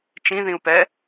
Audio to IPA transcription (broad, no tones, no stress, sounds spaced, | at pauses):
t͡ʃ ĩ ð ĩ u̯ p ɛ